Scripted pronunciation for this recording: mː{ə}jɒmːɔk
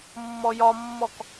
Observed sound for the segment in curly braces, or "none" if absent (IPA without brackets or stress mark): ɔ